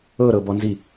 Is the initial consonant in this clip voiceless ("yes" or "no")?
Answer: no